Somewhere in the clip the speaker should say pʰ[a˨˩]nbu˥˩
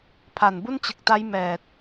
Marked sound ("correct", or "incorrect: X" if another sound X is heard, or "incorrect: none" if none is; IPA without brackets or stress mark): correct